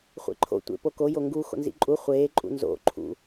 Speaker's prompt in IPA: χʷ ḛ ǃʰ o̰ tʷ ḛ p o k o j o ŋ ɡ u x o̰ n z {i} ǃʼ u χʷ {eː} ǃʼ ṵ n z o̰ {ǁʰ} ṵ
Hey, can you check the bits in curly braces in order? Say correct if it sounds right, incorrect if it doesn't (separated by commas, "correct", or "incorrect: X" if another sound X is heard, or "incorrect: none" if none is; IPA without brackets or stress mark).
incorrect: ḭ, correct, incorrect: ǃʰ